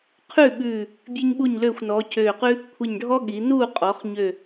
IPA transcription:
qʰ ʉ˥˨ ɓ ʉː˧˩ | bʲ ʉ˥ ɲ ɓ u˥˨ ɲ l øː˥˨ xʷ n ɔː˨˥ cʰ øː˧˩ q ʉ˥ | kʷʰ i˧˩ ɲ ɖʱ ɔ˥ ɠ i˩˧ n uː˥˨ qʼ ɔ˩˧ χ ɲ ø˧˩

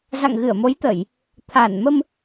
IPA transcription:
z a̰˧˨ ŋ ɣ ɨ˧˩ ə̯ m o˨˦ j t̪ ə˧˩˨ j | t̪ʰ a˧˩ n m ə˧ m

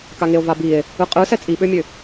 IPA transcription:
k a ŋ e o̯ v a b i e̯ | ɯ qʼ ɯ s ɛ t͡sʼ i ɓ ø mʲ ø

